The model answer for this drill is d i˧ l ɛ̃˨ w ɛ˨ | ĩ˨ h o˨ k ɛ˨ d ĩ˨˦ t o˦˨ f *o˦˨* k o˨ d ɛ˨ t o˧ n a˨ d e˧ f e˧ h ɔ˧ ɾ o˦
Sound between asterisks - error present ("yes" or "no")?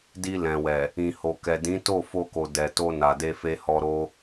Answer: yes